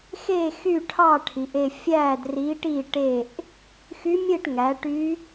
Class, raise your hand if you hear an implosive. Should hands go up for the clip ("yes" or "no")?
no